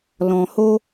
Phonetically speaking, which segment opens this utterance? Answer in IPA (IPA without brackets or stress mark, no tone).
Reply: l